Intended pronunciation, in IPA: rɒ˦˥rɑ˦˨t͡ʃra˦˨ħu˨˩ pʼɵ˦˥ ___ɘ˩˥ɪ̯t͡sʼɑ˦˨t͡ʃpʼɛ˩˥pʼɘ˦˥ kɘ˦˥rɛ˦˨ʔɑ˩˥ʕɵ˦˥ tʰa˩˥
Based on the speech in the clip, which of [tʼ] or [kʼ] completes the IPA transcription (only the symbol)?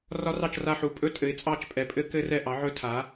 tʼ